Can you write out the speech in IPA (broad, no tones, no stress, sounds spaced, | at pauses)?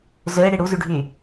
z ø ɪ̯ ɽ i ɽ u z y ɖʱ y